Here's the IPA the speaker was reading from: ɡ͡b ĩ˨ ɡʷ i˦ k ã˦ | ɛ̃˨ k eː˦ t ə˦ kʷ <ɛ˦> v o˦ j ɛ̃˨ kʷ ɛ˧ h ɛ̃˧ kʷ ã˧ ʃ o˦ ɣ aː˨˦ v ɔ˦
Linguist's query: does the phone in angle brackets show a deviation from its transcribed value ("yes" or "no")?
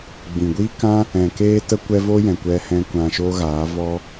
no